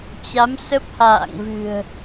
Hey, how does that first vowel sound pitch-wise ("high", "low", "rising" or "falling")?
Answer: rising